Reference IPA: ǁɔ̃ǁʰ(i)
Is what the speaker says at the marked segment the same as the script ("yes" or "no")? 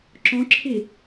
yes